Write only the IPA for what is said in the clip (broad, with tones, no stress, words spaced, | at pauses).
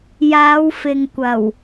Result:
jaː˨˧w fɪ˨ŋ kʷɐ˨˩w